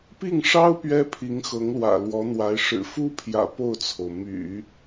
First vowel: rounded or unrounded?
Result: unrounded